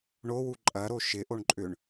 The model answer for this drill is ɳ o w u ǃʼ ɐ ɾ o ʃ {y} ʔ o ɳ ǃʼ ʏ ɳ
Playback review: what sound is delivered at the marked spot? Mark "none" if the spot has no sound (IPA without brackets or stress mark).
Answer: ɪ